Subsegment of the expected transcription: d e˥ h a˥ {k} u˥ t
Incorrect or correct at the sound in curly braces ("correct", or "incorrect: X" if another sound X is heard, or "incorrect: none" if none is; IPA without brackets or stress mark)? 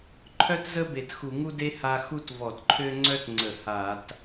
incorrect: x